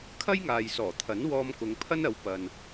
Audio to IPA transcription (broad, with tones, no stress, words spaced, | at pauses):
kʰɐ˥jŋaː˨jsɔː˨˩ t̪ʰɐ˨˥nwɔː˧mkʊ˨˧ŋ pʰɐ˥nɐ˨˥wpɐ˨n